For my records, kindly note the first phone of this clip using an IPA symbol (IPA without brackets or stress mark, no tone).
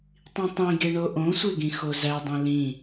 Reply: tˤ